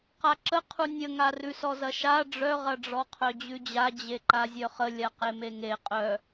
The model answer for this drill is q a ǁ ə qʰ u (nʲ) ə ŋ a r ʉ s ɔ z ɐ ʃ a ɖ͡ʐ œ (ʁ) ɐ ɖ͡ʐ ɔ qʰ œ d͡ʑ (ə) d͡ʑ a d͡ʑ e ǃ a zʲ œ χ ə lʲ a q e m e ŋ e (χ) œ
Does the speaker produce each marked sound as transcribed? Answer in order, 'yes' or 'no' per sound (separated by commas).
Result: yes, yes, no, no